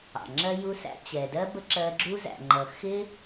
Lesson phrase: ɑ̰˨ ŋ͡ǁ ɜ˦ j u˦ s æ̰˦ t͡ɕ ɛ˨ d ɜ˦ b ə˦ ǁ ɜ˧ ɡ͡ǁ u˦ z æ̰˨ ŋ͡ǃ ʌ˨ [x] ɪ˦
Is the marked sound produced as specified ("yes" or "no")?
yes